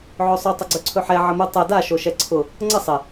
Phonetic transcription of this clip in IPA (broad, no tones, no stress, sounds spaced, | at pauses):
ʕ ɵ sˤ ɵ tˤ ə ɡ͡ǀ ɵ ǀʰ ɵ ħ ɛ ʕ ə m u tˤ ɛ d a ʃ o ʃ ɛ ǀʰ ʊ | ŋ͡ǀ ə sˤ ɪ